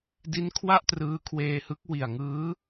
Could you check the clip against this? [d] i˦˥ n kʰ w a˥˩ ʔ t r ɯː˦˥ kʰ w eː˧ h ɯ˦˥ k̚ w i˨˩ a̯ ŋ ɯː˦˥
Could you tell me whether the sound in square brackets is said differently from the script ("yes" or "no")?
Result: no